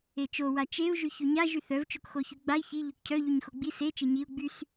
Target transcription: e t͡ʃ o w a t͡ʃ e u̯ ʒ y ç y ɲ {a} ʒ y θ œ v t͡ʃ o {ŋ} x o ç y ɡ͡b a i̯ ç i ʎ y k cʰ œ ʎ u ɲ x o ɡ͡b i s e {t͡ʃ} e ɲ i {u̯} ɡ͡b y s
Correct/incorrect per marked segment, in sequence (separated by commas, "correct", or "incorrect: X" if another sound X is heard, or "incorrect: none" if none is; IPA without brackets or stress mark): correct, incorrect: k, correct, correct